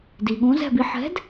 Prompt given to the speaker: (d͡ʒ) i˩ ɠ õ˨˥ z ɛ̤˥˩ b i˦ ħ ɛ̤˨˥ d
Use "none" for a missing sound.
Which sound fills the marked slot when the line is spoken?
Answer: d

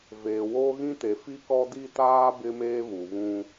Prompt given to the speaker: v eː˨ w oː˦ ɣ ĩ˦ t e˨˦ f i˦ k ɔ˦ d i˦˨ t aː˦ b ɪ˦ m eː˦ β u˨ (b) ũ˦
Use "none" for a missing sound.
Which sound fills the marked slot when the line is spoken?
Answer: β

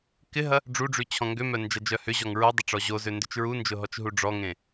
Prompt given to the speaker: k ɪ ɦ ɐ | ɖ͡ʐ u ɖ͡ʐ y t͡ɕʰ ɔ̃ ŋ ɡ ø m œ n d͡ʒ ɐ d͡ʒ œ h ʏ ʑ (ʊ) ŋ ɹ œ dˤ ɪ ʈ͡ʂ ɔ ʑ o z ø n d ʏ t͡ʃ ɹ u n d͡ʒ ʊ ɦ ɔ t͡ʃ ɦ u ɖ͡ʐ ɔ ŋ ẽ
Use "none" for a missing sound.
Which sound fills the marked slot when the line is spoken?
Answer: ɔ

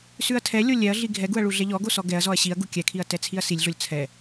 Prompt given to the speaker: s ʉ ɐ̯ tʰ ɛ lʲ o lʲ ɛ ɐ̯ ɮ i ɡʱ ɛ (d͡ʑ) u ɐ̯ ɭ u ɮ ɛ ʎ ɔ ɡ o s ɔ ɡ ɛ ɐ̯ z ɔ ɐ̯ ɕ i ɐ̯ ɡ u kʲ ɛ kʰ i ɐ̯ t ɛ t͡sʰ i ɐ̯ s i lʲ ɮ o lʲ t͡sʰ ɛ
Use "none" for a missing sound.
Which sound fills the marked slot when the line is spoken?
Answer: ɡ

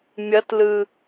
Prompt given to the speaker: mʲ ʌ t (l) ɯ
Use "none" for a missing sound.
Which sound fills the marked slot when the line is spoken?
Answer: l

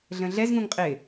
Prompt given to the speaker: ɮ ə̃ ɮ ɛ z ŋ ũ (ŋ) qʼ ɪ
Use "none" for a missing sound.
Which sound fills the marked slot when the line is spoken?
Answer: ŋ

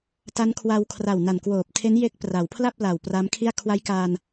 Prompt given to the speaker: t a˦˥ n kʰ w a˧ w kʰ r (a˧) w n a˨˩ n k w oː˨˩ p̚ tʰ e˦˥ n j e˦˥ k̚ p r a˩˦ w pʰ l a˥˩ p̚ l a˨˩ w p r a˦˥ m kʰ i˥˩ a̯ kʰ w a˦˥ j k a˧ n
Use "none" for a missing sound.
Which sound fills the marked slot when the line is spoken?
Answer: a˨˩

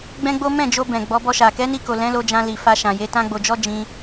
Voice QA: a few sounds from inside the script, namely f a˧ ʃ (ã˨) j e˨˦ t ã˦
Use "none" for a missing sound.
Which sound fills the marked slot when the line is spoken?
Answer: ã˨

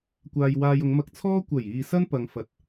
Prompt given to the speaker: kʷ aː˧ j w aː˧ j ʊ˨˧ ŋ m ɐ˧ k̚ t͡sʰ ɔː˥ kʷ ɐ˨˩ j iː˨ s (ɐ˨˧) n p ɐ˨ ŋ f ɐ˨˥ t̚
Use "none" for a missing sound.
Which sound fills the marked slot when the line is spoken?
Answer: ɐ˥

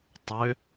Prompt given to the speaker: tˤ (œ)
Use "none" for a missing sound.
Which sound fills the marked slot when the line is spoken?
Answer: ø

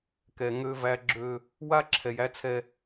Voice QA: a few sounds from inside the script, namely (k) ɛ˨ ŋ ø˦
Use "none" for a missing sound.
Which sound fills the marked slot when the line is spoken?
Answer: k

